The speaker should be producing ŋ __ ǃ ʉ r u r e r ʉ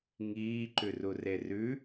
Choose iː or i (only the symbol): iː